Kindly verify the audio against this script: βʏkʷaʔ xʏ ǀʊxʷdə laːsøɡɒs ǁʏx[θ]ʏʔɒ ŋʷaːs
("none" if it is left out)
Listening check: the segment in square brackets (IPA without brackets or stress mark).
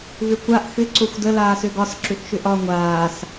ʃ